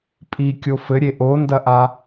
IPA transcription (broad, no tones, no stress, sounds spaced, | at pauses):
pʼ i kʲ o f ɘ ɾʲ e ʔ o n d ɐ ʔ a